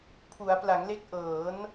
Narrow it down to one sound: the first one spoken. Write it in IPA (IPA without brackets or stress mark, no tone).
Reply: pʰ